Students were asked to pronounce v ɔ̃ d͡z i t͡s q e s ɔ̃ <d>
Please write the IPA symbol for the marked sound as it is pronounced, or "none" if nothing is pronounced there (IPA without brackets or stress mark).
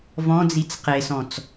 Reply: t͡s